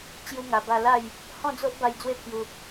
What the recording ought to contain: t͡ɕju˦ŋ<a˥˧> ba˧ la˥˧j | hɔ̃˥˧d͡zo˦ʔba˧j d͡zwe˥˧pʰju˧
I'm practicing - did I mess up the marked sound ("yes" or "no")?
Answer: yes